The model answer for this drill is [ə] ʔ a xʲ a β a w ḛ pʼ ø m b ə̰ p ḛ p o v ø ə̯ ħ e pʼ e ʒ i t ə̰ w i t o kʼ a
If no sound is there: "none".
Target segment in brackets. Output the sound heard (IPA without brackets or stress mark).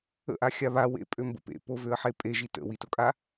ə̰